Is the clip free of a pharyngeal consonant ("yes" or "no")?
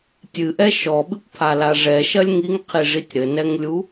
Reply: yes